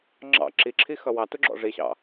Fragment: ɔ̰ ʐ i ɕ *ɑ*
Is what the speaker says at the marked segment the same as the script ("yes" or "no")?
no